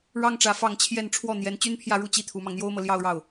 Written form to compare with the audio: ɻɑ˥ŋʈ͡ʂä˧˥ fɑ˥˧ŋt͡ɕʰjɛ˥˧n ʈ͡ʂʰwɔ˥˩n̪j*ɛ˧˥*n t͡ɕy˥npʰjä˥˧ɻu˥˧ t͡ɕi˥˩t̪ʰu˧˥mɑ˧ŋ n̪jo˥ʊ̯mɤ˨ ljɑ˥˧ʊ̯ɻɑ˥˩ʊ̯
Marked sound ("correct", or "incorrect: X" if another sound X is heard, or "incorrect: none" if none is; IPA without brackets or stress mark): correct